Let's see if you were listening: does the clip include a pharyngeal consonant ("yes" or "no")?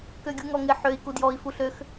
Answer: yes